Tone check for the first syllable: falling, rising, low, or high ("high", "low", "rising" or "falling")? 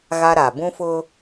high